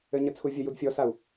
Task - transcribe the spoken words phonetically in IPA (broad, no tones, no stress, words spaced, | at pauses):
ɘɲət͡sʰu vʲəjud fʲɔsau̯